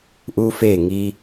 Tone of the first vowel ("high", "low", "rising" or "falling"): high